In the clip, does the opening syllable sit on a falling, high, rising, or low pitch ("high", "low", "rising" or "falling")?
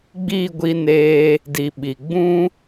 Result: falling